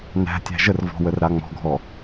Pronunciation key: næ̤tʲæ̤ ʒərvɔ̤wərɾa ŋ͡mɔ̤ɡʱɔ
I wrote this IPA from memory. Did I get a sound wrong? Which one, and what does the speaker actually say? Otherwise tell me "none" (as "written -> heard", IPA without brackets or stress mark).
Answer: none